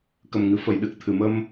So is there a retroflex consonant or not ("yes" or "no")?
no